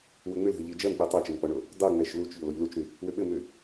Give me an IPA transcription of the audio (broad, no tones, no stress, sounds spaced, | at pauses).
w ʏ ŋ͡m ʏ l ɦ ʏ ʎ i d͡ʒ ɜ m k͡p i tˤ ɜ t͡ʃ ɘ m k͡p ɔ ɳ o | dˤ u ŋ͡m ɛ ʃ l u t͡ʃ ʎ o l o ʎ l u t͡ʃ ɾ y | w ʏ ɓ ɘ m ʏ